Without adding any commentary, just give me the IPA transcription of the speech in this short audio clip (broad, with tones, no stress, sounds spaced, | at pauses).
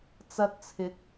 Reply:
t͡s ɐ˧ t̚ t͡sʰ ɪ˨˥ k̚